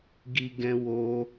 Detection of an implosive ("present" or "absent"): absent